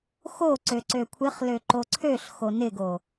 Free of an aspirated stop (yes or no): no